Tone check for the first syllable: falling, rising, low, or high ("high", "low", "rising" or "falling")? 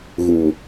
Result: low